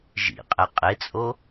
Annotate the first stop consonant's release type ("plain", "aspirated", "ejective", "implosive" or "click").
ejective